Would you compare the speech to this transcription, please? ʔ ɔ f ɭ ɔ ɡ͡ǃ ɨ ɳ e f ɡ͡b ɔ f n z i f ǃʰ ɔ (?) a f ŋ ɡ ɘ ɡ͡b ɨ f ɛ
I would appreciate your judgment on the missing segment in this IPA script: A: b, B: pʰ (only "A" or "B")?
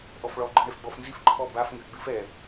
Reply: A